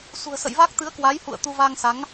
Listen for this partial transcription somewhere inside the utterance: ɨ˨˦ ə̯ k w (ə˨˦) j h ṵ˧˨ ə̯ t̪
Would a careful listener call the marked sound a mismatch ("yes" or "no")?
yes